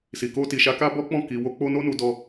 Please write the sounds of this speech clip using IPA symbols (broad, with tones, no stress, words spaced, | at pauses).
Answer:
si˨ko˧ ti˨ʃa˧ ka˦bɔ˦k͡pɔ̃˦˨ ki˨wo˧ k͡po˦ no˦nu˧dɔ˧